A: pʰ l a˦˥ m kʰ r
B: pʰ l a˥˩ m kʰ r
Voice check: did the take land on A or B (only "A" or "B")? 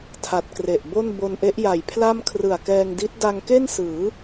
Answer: B